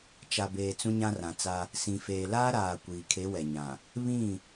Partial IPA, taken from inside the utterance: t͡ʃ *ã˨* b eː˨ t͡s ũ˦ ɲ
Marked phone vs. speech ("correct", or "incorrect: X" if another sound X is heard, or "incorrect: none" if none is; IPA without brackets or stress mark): incorrect: a˨